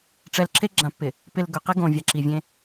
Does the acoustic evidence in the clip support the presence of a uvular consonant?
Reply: yes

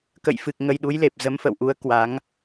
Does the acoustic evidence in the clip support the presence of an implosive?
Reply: yes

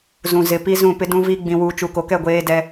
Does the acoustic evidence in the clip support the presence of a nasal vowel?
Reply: yes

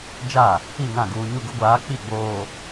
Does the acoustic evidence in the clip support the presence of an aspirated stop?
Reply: no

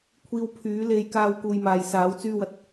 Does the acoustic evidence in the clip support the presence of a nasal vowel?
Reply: no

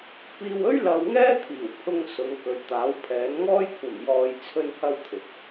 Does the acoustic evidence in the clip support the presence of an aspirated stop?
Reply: yes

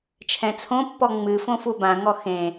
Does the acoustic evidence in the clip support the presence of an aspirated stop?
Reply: yes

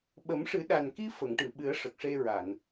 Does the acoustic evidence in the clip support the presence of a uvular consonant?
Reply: no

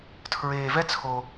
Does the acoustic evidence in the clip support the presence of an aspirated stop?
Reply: yes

